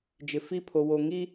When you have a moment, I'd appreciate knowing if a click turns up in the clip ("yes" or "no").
no